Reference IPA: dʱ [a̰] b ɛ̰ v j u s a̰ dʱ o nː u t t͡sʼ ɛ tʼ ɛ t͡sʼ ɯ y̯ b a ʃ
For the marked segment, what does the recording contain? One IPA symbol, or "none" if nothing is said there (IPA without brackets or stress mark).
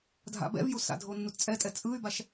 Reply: a̰